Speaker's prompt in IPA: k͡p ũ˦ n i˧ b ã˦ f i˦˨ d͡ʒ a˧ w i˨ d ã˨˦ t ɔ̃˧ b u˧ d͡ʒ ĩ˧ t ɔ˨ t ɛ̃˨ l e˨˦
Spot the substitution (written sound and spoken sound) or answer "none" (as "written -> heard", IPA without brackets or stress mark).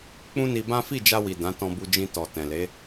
none